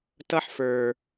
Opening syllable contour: high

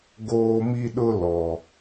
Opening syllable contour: high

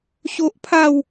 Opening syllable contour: high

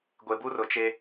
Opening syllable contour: low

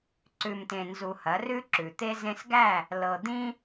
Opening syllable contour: low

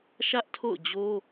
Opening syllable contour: high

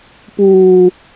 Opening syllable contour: high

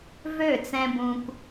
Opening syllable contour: falling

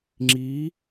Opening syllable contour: rising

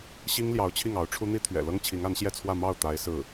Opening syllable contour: high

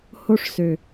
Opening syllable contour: high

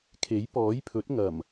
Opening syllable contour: rising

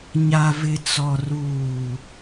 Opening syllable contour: low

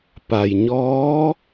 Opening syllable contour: low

